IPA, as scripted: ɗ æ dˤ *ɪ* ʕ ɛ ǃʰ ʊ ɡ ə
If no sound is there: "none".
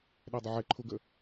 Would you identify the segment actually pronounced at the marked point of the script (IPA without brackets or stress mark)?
ɪ